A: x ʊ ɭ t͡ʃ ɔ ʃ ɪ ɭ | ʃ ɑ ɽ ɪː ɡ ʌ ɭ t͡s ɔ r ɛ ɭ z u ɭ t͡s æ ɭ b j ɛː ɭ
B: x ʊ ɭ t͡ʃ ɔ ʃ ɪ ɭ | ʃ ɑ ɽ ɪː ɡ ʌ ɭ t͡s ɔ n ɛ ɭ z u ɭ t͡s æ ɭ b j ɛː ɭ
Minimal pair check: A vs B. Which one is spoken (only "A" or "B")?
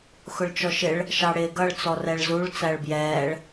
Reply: A